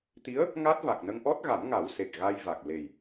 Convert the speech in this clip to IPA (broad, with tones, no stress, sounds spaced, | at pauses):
t̪ i˧˥ ə̯ | ŋ a˦˥ t̚ v a˨˩ k̚ n ə˧ ŋ ʔ ɔ˦˥ t̚ ɣ a˨˩˦ m ŋ a˨˩˦ w s e˨˩ k̚ ɣ a˧ j v a˨˩ k̚ l e˨˩ j